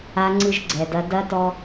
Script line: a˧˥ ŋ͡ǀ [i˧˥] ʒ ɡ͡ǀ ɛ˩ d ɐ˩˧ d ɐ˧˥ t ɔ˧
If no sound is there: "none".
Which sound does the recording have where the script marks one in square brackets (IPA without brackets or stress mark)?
ɨ˧˥